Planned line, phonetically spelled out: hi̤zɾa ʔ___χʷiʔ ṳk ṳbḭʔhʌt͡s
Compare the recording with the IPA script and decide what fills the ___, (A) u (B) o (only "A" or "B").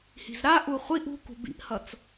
A